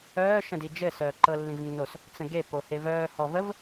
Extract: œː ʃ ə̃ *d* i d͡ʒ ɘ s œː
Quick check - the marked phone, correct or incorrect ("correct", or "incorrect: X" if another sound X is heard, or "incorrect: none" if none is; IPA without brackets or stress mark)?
correct